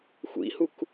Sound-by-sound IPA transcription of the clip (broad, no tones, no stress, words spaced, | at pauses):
xʷḭhuk